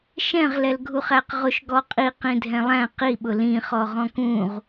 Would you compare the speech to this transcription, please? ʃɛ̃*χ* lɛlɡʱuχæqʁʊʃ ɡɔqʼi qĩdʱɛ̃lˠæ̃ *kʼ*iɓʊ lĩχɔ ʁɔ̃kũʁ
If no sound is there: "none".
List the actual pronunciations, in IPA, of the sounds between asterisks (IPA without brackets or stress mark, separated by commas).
ʁ, q